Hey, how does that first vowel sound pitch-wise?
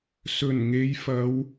low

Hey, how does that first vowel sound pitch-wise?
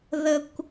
high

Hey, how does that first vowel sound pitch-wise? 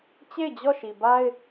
falling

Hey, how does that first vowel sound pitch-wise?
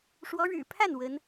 rising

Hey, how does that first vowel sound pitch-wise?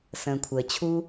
low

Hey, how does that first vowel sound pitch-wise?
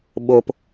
low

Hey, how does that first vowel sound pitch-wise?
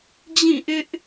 falling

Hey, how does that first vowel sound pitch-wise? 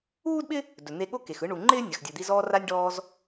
high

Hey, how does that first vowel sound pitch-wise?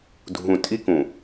low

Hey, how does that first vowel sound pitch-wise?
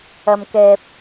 low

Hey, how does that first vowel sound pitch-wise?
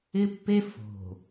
high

